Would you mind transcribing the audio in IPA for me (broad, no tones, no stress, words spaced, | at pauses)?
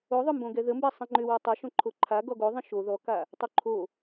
oðˤʏmbõ ɡɛðəmbɛ sˤĩŋ͡ǃʏwɔ tˤɛ ʃõǃʰoǃʰa ɡɔɡo ðˤĩʃo ðɔka | tˤuǃʰo